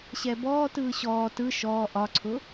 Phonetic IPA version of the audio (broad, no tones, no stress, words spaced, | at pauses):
ɕɛbɔːtɯː ɕɔː tɯ ʃɔː ʔɒǀʰʊ